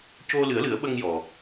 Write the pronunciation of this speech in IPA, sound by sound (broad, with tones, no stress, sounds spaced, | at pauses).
c o˧ l ɨ˨˩˦ ə̯ l ɨ˨˩˦ ə̯ ɓ ə˧ ŋ j ɔ˨˩